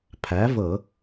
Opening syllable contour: rising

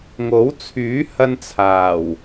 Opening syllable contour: rising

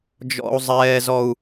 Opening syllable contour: high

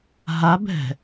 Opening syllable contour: rising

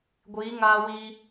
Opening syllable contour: rising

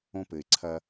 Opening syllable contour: high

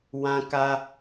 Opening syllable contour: high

